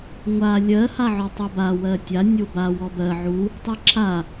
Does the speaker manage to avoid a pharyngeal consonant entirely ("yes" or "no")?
no